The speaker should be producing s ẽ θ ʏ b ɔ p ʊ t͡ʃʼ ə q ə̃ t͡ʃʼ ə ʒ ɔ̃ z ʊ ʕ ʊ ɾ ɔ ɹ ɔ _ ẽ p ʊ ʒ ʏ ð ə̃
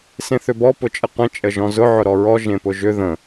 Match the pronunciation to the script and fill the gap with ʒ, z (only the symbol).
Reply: ʒ